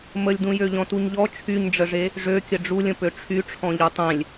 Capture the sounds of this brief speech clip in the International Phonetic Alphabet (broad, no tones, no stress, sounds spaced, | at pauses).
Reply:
m ə lʲ d ũ j ø ʎ ɔ̃ t u ɲ ʎ ɔ t͡ʃʰ y ɲ ɖ͡ʐ ə ʐ e | ʐ ø kʲ ə ɖ͡ʐ u lʲ ə̃ p ø ʈ͡ʂʰ y ʈ͡ʂʰ ɔ̃ ʎ y tˤ ẽ lʲ